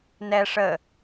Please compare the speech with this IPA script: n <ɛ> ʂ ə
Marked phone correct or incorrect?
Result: correct